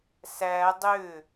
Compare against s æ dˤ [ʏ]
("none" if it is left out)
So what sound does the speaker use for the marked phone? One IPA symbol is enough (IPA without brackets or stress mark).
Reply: ʏ